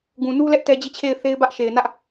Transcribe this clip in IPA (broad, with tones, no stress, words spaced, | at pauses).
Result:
ɡũ˨nu˦lɛ˦ʔ tɛ˦d͡ʑi˦˨t͡ɕʰe˦˨ɪ̯θe˦ɪ̯ bä˦ʔʃe˨ɪ̯nä˦ʔ